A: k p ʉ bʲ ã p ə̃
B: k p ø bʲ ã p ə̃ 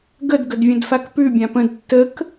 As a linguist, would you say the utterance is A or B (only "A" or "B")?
A